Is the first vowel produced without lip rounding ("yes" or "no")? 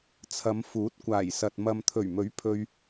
yes